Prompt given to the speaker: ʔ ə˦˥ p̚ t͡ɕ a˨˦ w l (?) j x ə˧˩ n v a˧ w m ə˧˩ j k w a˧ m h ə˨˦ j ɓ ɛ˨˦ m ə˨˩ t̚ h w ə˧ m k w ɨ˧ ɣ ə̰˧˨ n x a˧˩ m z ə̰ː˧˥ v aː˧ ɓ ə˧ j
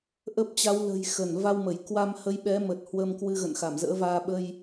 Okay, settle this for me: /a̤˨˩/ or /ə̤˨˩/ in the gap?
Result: ə̤˨˩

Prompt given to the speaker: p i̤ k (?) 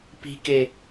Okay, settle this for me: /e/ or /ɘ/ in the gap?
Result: e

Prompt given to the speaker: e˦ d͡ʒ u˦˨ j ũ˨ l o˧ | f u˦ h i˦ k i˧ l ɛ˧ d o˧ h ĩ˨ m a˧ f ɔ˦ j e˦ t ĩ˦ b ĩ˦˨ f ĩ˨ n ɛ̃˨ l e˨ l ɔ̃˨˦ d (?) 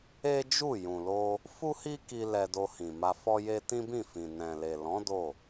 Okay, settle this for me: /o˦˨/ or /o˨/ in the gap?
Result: o˦˨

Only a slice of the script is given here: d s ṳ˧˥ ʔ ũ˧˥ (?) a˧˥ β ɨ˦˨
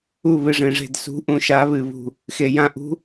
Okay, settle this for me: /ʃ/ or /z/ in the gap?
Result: ʃ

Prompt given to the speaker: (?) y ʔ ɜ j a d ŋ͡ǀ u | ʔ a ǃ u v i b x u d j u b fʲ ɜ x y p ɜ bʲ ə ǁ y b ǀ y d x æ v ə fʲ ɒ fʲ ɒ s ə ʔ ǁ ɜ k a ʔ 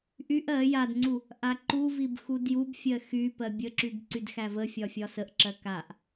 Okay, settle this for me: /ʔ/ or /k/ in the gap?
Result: ʔ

